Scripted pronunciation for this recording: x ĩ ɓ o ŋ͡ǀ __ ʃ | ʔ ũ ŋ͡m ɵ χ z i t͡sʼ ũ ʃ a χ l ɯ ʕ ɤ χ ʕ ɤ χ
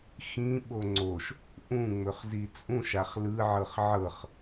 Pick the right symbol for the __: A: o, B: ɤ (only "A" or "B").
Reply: A